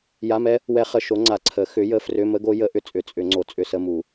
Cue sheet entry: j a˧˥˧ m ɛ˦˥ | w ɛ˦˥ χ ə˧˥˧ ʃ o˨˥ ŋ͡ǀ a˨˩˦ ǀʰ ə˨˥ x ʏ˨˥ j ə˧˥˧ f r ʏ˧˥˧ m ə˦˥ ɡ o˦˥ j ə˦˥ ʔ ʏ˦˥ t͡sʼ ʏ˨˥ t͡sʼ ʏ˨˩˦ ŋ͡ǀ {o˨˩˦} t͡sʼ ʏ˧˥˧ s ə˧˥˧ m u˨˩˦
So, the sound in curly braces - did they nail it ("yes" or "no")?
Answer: no